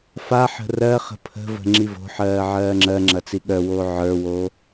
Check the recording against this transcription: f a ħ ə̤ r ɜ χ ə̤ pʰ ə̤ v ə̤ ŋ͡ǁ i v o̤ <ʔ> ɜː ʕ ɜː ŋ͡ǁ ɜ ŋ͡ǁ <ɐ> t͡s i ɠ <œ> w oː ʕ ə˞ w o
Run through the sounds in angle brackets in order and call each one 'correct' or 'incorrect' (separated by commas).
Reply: incorrect, correct, correct